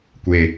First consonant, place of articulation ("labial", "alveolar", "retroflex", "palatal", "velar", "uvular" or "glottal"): velar